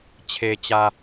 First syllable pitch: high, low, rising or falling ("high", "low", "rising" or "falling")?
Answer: low